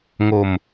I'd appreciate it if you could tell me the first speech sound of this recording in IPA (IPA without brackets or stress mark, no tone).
ŋ